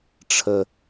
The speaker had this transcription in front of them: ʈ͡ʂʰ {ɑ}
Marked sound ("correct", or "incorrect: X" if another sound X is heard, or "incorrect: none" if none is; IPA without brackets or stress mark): incorrect: ə